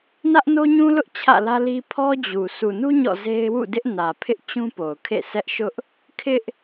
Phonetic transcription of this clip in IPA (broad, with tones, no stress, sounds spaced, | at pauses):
n ä˦ ʔ n o˦ ɲ ũ˦ l ʊ˦ ʔ t͡ɕʰ ä̰˦˨ l ä˦ l i˦ pʰ ɔ˦ d͡ʑ u˨ sʰ u˨ n u˦ ɲ ɔ̰˦˨ z e˦ ɪ̯ w ṵ˦˨ d ɪ˦ ʔ n ä˨ pʰ ɪ˦ ʔ t͡ɕ ũ˦ p o˨ ʊ̯ kʰ ḛ˦˨ sʰ ɛ˦ ʔ ʃ ʊ˦ ʔ | kʰ ɪ˦ ʔ